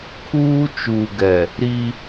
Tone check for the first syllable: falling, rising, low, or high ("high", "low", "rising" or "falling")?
high